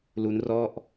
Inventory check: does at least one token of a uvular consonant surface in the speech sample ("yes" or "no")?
no